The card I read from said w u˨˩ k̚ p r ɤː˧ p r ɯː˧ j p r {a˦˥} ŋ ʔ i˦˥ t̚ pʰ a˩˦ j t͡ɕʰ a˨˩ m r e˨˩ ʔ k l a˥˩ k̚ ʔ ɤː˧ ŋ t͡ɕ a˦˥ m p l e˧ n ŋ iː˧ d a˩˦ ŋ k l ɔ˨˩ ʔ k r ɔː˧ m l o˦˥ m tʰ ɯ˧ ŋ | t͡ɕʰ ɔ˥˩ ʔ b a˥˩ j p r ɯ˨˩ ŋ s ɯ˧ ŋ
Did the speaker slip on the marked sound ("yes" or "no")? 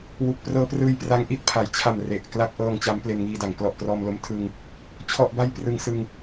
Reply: no